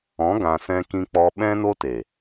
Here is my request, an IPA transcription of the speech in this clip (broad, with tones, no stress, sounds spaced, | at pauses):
ɔ̃˨˦ ɡ ã˧ s ɛ̃˦ k ĩ˦ k͡p ɔ˦ ɓ ɛ̃˦ n o˦ t e˨